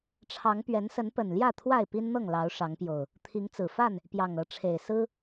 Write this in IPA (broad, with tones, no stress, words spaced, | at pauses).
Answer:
ʈ͡ʂʰɑ˨˦ŋ pɥɛ˨˦nsə˨˦npə˨˩nljä˥˨ t̪ʰwa˥˨ɪ̯pi˦nn̪ɤ˥˨ŋ lɑ˨˦ʊ̯ʂɑ˨˦ŋpjo˨˩ʊ̯ | t̪ʰi˨˦ŋt͡sɹ̩˨˩fa˥˨n | pjɑ˨˩ŋɤ˨˦ ʈ͡ʂʰe˨˩ɪ̯ sɹ̩˦